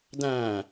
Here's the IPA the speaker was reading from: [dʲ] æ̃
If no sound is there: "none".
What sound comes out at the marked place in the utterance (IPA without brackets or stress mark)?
d